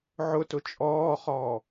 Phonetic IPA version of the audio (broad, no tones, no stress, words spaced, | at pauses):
ʕʊtʊ t͡ʃʼɔːχɔː